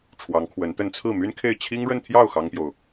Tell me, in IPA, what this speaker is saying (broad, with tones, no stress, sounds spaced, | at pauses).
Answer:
ʈ͡ʂʰ w ɑ˧˥ ŋ kʰ w ə˧˥ n t̪ ə˥˧ n t͡sʰ ɹ̩˥˩ m y˥ n kʰ e˥˩ ɪ̯ t͡ɕʰ i˥ ŋ ɻ ə˥˧ n t̪ʰ j ɑ˥˩ ʊ̯ x ɑ˥ ŋ p j o˨ ʊ̯